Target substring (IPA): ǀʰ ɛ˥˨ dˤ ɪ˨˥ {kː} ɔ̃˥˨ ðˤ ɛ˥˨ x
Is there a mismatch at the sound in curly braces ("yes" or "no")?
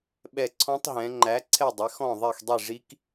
yes